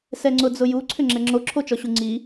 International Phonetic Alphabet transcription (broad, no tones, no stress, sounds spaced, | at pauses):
s ɛ ŋ͡ǀ ʊ d͡z ʊ j u ǀʰ ʏ ŋ͡ǁ ɛ ŋ͡ǁ o ǁʰ o t͡ʃ ɔ ɕ u ŋ͡ǀ i